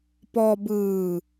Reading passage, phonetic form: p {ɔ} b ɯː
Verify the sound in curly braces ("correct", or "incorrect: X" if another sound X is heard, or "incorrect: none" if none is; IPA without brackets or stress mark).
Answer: correct